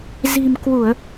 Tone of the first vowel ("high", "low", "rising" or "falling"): low